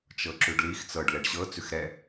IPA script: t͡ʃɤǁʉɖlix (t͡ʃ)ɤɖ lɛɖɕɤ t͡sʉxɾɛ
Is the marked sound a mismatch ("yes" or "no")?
yes